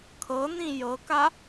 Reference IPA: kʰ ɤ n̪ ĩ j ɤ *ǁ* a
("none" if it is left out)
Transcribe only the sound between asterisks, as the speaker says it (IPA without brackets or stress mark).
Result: k